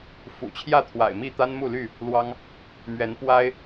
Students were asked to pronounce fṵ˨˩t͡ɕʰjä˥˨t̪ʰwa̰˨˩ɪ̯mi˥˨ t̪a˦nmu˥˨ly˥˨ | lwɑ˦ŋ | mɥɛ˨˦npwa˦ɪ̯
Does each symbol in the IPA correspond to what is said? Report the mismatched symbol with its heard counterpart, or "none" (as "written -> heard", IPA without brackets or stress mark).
none